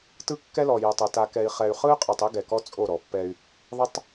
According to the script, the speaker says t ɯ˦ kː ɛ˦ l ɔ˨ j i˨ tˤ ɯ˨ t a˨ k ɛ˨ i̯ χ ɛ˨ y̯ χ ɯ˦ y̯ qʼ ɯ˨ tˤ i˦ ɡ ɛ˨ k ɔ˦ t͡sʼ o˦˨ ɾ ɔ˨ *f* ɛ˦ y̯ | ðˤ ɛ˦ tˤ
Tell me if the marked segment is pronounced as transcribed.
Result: no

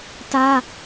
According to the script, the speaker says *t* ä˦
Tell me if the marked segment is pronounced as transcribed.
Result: yes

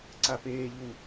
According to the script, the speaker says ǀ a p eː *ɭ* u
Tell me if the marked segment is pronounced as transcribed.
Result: no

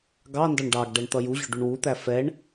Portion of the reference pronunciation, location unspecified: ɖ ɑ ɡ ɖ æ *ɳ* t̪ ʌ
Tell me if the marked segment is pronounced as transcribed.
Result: yes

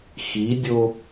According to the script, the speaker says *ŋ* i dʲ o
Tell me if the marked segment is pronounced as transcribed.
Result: no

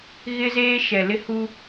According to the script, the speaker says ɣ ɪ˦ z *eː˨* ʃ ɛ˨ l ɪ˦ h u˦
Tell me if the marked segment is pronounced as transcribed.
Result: no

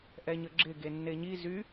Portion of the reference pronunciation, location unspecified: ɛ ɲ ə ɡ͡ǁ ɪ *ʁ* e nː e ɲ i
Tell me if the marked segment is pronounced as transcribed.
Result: no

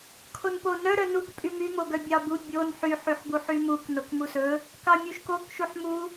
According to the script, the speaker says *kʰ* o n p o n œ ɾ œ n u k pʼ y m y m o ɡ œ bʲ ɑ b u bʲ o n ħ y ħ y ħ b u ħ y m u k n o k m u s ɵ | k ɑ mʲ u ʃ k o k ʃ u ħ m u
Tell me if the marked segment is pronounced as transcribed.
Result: yes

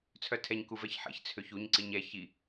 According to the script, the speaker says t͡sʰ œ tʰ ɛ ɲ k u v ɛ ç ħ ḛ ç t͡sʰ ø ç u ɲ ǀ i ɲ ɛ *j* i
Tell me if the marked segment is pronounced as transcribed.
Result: no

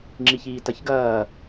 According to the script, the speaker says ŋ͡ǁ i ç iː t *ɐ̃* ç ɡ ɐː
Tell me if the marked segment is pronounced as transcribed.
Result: no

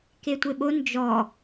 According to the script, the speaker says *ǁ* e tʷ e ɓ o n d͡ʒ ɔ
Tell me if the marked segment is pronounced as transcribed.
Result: no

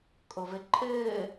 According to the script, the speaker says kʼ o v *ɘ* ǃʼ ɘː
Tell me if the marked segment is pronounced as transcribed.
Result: yes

